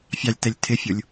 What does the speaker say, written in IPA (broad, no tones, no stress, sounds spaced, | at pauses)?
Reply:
fʲ ɑ lʲ t ɛ lʲ tʰ ɪ fʲ u lʲ